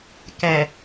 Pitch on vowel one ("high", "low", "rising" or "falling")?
low